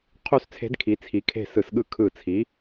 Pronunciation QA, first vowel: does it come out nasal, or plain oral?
oral